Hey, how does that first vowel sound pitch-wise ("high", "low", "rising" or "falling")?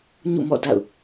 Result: falling